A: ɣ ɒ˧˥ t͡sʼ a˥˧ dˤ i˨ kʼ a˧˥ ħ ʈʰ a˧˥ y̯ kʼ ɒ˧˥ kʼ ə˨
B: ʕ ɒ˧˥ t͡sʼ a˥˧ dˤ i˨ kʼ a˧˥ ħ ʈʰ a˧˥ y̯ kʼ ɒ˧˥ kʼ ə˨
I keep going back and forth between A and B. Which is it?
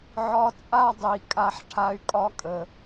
B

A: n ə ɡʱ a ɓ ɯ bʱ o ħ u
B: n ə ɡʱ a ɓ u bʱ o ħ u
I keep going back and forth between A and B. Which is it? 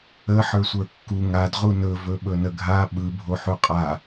A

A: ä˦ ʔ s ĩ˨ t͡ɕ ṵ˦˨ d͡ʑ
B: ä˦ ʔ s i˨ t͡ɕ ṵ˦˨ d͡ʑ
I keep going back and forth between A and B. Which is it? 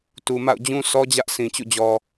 A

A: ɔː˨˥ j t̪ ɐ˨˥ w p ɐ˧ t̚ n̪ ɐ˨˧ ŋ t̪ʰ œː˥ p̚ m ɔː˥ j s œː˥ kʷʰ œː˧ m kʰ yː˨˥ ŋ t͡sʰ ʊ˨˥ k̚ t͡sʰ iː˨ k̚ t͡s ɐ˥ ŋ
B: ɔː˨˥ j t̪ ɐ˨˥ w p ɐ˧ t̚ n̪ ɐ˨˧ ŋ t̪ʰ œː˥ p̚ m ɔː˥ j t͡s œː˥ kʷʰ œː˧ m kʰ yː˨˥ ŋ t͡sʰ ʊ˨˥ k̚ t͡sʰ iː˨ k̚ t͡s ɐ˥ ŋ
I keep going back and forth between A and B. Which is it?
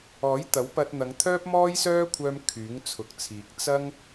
A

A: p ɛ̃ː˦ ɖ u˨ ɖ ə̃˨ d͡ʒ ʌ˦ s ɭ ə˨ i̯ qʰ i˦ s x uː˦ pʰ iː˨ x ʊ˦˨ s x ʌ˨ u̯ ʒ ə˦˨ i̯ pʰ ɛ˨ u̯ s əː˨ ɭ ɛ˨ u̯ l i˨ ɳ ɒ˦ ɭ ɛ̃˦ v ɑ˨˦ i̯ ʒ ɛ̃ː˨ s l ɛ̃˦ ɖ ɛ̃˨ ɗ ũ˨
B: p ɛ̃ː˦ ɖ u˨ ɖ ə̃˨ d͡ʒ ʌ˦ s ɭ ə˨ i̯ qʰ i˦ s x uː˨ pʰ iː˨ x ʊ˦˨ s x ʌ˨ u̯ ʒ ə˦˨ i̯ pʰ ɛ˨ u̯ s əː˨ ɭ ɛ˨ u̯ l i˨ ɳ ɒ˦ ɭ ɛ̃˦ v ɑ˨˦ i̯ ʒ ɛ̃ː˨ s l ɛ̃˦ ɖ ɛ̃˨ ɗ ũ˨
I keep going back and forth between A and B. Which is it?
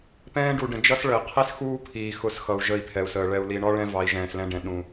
A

